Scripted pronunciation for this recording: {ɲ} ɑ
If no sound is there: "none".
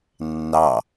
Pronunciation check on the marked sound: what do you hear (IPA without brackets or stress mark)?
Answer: nː